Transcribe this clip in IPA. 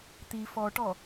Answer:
t̪ i f ɔ ʈ ɔ

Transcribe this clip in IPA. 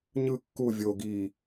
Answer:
ɲ ɯ kː u vʲ o ɡ i

